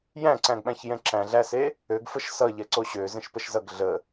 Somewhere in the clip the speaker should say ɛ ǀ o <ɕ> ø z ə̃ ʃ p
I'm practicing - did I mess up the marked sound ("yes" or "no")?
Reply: no